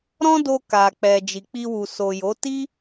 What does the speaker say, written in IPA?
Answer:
ɾ ɔ̃˦ d o˧ k a˨ k͡p ɛ˨ d͡ʒ i˨ k͡p i˧ w u˨ s o˨ j o˨˦ t i˦

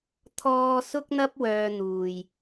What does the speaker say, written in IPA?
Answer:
t̪ʰ ɔː˧ s ʊ˥ k̚ n̪ ɐ˥ p̚ w œː˧ n̪ uː˨ j

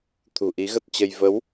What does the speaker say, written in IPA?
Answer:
t̪ʰ ṳ˨˩ ʔ i˨˦ ɣ ə˦˥ t̚ t͡ɕ ə˧ j v ə˨˦ w

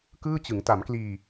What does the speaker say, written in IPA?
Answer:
k ɯː˥˩ t͡ɕ ɯ˩˦ ŋ t a˩˦ m k l iː˧

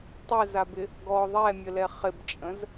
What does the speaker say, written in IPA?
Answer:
tˤ ɛ z a b ɪ | ɡ ɔ ðˤ ɛ mʲ ə l ɛ χ ɪ b t͡ʃʼ ə̃ z

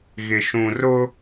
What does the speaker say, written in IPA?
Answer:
ɣ ɪ˨ ʃ ũ˨ r ʊ˦

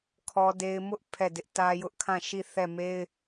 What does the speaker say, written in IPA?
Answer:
kʰ ɔ˦ d e˦ ɪ̯ m ʊ˦ ʔ pʰ ɛ˦˨ d ɪ˦ ʔ t ä˦ j ʊ˦ ʔ kʰ ã˦˨ ʃ i˦˨ θ ɛ˦˨ m e˦ ɪ̯

